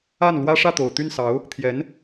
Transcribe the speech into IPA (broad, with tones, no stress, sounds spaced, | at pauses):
a˥˩ n l w ä˥ ʂ ä˥˩ t̪ o˨˩ ʊ̯ t̪ y˥˩ n s ɑ˧˥ ʊ̯ | t̪ʰ j ɛ˧˥ n